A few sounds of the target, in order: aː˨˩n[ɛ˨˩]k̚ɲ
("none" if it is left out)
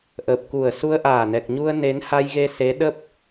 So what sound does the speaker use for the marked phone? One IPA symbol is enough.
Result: ɛ˨˩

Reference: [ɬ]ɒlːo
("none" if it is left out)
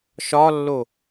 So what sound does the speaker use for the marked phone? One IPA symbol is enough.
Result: ʃ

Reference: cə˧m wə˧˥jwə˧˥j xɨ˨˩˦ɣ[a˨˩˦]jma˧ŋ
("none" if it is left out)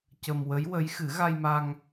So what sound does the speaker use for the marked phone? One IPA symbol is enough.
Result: a˧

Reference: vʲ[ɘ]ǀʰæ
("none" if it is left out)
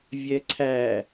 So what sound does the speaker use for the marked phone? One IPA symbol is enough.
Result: ɛ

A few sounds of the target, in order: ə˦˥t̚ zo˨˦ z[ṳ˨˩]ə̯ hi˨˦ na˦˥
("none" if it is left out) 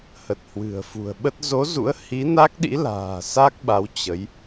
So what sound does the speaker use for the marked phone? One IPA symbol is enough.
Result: ṵ˧˥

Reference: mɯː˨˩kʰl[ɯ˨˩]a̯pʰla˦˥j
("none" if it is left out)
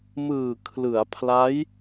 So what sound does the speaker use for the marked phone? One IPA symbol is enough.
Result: ɯ˩˦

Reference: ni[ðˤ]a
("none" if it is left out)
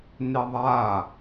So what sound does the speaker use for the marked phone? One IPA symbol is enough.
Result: ðˤ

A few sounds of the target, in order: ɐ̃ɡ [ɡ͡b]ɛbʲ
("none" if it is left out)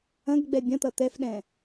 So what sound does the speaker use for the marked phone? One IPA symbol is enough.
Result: ɡ͡b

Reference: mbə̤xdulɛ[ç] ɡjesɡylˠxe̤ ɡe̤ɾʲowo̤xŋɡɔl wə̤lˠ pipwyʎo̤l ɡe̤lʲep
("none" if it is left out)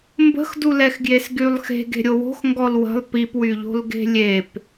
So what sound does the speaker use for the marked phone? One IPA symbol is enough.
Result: x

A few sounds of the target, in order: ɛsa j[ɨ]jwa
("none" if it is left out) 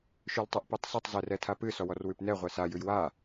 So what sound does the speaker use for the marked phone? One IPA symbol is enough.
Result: ʉ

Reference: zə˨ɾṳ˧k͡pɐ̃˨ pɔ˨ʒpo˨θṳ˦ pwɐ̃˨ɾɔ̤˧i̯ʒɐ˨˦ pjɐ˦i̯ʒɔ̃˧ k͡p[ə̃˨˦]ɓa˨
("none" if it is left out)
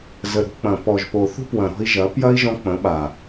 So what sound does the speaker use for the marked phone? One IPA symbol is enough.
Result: ə̃˨˦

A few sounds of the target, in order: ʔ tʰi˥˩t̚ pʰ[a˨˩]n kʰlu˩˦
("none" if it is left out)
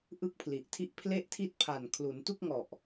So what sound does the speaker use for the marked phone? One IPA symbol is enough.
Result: a˨˩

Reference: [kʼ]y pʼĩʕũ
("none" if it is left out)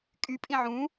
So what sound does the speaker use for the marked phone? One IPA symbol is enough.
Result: kʼ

